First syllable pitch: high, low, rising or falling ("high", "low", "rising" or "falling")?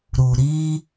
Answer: low